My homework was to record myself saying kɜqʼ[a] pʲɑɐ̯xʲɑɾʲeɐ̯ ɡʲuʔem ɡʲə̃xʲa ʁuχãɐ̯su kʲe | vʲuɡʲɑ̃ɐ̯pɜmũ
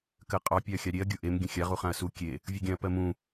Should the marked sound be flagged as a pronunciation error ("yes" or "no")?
yes